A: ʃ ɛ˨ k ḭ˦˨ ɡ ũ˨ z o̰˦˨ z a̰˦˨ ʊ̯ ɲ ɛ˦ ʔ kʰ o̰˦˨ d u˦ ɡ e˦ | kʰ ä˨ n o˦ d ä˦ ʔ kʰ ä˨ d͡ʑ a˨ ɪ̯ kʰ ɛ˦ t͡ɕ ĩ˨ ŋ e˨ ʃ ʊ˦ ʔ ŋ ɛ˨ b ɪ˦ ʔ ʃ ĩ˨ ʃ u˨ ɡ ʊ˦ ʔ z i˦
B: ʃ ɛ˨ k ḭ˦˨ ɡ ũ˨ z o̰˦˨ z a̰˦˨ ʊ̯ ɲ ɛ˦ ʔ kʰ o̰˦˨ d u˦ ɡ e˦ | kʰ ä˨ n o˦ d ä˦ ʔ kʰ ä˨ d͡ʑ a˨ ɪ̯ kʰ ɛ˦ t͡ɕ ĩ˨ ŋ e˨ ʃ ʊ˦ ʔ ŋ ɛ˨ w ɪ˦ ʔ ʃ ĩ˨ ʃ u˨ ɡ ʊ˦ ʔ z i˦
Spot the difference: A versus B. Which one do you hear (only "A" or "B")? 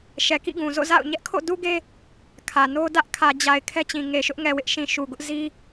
B